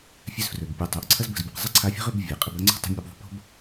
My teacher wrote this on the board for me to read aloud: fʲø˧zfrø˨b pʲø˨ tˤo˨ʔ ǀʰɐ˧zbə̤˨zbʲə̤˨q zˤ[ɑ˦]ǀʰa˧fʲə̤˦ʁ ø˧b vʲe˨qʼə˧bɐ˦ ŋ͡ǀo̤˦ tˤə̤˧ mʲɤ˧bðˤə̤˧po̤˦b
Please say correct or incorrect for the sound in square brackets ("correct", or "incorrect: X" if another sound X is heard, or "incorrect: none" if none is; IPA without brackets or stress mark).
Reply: incorrect: ə˦